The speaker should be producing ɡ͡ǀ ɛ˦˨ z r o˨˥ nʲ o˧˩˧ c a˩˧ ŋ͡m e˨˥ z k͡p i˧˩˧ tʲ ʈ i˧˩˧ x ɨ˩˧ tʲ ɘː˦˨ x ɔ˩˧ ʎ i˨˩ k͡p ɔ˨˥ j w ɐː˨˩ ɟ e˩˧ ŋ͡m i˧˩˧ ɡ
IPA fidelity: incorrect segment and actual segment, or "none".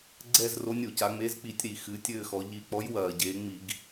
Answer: ʈ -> ɾ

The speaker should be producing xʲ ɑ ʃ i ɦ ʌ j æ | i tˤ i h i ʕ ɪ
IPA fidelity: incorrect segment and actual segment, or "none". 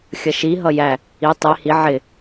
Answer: ɑ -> ʌ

